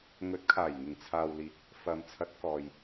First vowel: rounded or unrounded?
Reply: rounded